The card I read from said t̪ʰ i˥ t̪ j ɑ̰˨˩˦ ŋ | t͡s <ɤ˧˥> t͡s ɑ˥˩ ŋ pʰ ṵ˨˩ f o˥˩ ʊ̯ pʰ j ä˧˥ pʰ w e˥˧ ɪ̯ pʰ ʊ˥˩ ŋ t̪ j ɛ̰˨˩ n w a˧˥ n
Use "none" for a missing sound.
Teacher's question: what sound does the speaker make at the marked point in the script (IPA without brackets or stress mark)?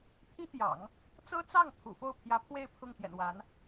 ɤ˥